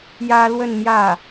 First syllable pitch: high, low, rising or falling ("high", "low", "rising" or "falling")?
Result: high